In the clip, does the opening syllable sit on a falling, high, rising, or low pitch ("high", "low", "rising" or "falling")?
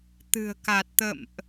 low